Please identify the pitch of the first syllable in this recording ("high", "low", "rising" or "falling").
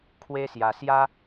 high